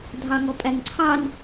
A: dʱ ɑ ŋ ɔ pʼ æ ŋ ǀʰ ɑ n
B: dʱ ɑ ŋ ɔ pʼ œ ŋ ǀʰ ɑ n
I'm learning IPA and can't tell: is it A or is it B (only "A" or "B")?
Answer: A